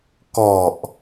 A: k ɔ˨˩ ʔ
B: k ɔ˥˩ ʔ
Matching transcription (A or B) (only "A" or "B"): A